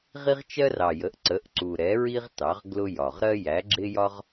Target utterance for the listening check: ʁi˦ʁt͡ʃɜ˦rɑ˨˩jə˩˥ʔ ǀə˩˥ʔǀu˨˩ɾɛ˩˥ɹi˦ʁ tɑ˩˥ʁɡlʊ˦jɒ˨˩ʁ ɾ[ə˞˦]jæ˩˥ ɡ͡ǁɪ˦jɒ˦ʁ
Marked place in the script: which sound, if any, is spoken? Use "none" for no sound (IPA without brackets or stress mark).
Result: ɜ˦